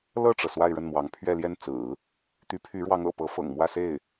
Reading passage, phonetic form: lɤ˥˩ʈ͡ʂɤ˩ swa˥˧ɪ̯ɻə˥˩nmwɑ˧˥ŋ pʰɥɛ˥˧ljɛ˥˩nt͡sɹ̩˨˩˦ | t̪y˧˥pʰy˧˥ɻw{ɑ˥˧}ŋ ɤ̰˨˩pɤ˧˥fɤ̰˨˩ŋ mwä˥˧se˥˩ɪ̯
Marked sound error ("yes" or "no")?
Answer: yes